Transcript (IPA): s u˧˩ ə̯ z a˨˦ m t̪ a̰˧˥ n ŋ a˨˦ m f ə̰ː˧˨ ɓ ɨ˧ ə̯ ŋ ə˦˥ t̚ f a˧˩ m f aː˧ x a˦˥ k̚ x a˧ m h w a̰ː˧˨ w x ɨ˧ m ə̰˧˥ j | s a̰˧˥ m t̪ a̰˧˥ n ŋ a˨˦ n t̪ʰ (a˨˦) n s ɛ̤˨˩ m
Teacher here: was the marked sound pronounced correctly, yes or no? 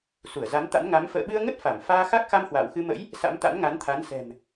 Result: yes